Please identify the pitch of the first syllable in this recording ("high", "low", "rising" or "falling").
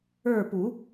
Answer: falling